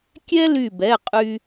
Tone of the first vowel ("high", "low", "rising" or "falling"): high